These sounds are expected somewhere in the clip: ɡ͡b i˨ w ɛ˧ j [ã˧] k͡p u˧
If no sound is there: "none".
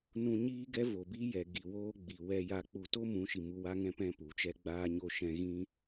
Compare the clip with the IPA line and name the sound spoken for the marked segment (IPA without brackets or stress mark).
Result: a˧